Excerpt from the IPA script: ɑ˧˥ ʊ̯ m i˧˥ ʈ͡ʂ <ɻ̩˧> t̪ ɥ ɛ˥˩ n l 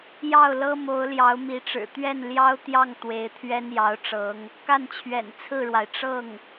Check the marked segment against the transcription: incorrect: ɻ̩˨˩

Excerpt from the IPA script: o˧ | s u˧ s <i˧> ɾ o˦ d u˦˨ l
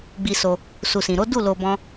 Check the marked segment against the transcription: incorrect: ĩ˧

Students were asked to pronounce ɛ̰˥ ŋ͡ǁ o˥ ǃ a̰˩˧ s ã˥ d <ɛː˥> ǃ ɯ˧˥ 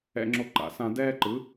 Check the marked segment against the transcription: correct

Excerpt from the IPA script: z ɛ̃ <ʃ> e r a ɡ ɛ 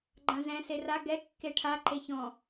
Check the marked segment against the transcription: incorrect: s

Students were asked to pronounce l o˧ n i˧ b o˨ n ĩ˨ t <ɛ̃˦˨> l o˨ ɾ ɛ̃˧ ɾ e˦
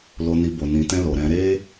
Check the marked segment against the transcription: incorrect: ɛ̃˧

